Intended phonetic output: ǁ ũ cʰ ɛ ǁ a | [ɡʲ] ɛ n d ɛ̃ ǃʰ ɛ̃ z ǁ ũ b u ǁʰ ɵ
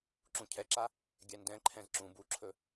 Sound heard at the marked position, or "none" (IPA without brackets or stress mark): ɡʲ